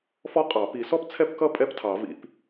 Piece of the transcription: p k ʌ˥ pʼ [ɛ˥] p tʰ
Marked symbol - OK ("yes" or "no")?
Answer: yes